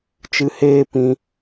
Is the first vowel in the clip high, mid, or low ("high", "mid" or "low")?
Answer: high